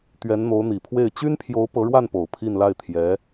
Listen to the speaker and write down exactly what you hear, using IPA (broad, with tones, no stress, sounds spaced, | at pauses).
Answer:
t̪ ɥ ɛ˧˥ n n̪ o˧˥ ʊ̯ n̪ i˨˩ pʰ w e˥˩ ɪ̯ t͡ɕ y˥ n pʰ j o˧˥ ʊ̯ p ɤ˧˥ ɻ w a˥˩ n p o˨˩ ʊ̯ pʰ i˥˧ n l a˥˩ ɪ̯ t̪ʰ j ɛ˧˥